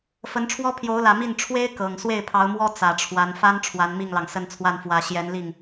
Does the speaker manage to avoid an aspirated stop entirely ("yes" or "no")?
no